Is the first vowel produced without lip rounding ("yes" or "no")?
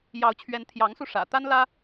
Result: yes